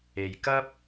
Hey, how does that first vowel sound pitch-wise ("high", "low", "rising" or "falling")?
low